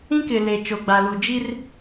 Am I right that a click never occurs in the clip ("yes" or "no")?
yes